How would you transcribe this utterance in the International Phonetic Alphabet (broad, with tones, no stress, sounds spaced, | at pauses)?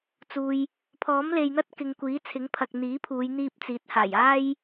t͡s uː˨ j | pʰ ɔː˨˥ m l e˨ j n̪ ɐ˥ t̚ k ɪ˨ ŋ kʷ iː˨˥ t͡sʰ ɪ˨˥ ŋ pʰ ɐ˨ k̚ n̪ iː˨˥ pʰ uː˨˧ j n̪ iː˧ p̚ t͡s iː˨˥ t̚ h aː˨˩ j aː˥ j